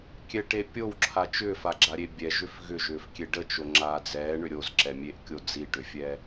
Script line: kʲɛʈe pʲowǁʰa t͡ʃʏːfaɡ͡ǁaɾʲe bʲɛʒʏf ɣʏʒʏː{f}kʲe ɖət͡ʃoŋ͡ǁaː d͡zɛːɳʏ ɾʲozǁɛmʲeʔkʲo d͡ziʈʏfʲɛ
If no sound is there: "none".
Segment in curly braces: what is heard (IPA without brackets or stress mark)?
f